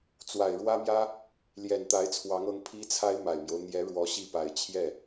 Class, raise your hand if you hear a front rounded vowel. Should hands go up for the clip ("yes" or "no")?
no